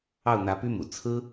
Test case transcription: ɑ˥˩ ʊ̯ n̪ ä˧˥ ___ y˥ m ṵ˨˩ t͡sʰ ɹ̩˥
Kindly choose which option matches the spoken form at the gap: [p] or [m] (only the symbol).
p